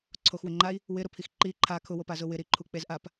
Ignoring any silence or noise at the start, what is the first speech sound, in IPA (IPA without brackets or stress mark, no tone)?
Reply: ǀʰ